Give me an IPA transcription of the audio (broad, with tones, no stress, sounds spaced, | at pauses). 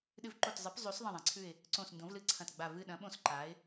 ɗ ɨ˦˨ v ǃ o˦˨ t zˤ ɨ˨˥ p zˤ ʉ˨˥ s ðˤ ɐ̃˦˨ ðˤ ã˨˥ ǀʰ ʉ˦˨ ɪ̯ | ǀ õ˦˨ s n d õ˨˥ v l ɨ˦˨ ǀʰ ɐ̃˦˨ t ɡ͡b a˦˨ v ɨ˦˨ ɗ ɐ̃˨˥ ɓ õ˦˨ s ǃ a˨˥ ɪ̯